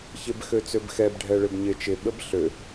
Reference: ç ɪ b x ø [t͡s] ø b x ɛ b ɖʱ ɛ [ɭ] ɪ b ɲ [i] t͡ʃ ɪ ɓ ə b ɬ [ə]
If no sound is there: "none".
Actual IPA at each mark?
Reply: t͡s, ɭ, ɪ, ø

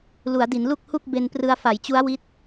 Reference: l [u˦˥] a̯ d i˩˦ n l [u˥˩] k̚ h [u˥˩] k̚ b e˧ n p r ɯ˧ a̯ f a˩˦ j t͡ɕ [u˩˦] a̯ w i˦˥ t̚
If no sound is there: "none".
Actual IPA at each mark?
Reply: u˩˦, u˥˩, u˥˩, u˦˥

